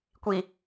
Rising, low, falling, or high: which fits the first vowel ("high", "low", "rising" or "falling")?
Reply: low